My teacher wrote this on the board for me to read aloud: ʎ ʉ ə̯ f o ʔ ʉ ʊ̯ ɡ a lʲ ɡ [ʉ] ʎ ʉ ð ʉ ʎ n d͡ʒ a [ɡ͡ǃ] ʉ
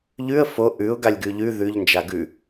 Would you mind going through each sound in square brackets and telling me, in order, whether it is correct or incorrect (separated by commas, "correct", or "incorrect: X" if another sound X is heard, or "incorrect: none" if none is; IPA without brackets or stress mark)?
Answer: correct, incorrect: ɡ